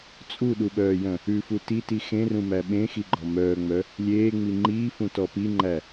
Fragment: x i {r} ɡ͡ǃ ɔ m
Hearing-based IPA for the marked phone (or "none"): none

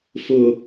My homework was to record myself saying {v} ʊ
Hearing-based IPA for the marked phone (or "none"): f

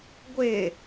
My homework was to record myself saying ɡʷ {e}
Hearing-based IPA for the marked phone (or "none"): e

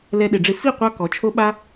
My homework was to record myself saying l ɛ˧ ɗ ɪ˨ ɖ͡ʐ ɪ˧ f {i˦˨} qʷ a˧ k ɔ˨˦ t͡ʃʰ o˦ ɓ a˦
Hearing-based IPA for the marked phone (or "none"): i˦˨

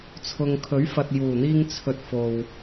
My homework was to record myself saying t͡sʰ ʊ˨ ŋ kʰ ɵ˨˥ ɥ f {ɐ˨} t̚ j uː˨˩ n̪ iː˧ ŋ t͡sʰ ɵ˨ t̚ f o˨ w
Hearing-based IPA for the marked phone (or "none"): ɐ˨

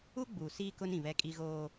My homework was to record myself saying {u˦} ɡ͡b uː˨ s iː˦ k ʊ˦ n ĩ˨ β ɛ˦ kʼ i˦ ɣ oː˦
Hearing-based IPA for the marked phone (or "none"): u˦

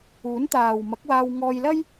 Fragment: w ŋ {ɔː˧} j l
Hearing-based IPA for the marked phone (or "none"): ɔː˧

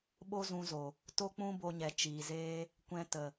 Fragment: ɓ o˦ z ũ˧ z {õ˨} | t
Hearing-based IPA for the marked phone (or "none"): o˨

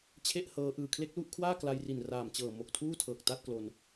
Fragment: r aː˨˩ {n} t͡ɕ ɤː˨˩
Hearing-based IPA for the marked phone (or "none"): m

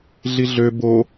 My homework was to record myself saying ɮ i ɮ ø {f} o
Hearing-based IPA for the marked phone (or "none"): b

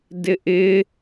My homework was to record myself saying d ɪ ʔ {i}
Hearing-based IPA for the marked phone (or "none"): ɪ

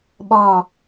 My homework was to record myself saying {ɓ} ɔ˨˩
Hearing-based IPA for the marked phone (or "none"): ɓ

